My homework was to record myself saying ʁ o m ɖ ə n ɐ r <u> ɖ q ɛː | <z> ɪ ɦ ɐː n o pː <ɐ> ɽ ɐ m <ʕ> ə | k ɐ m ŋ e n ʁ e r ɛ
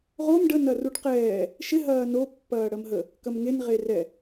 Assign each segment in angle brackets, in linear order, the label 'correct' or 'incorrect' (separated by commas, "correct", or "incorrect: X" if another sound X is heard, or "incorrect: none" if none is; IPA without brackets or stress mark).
correct, incorrect: ʃ, incorrect: ɐː, incorrect: ɦ